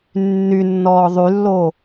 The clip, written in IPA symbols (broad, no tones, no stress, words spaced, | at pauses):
nːynːɔː ðˤylːo